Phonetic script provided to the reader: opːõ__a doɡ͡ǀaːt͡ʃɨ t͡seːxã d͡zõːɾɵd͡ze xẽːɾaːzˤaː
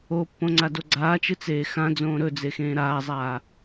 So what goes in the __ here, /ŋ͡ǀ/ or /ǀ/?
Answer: ŋ͡ǀ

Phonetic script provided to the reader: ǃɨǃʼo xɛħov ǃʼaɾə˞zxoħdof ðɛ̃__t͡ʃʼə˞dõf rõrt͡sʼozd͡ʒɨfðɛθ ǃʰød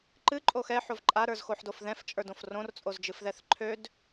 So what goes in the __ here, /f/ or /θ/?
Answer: f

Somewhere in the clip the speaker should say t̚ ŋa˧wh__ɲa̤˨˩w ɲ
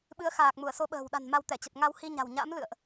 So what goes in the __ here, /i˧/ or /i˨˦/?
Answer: i˧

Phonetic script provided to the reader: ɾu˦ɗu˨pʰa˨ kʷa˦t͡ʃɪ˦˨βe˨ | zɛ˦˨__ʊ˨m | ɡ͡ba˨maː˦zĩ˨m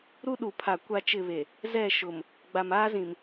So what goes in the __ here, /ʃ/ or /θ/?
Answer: ʃ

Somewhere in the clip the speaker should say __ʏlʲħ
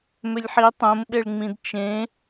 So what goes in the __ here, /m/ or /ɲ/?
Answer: m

